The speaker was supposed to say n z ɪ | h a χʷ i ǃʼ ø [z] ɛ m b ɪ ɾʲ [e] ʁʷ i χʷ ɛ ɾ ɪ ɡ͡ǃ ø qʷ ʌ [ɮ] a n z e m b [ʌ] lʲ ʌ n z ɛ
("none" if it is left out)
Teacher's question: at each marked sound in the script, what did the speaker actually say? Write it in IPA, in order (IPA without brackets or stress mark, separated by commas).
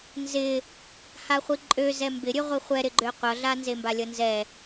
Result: z, ø, ɮ, a